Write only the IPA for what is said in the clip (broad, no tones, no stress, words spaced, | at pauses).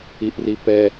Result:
iʔripɛ